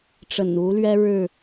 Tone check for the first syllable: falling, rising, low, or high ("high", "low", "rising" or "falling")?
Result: low